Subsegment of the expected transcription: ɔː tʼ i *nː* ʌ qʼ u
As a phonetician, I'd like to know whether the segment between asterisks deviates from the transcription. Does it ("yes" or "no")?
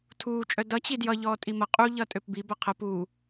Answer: yes